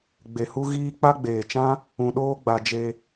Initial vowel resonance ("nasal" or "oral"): oral